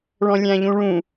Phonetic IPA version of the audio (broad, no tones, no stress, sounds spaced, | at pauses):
ɭ ɔ̃ lʲ æ̃ ʎ ũ ɭ ũ